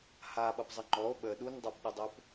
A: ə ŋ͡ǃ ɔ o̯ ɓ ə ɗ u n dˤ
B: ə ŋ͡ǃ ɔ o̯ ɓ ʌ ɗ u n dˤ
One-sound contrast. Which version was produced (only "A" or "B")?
A